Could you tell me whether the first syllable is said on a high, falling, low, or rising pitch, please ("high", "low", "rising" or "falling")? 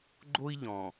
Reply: high